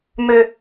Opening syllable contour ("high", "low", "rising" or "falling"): low